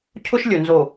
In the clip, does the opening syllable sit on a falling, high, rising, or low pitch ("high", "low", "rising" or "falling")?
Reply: high